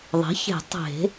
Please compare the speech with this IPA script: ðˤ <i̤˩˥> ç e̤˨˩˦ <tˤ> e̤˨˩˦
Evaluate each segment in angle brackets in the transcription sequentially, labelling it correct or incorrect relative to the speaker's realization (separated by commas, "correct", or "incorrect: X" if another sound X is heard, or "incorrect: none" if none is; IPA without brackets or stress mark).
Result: correct, correct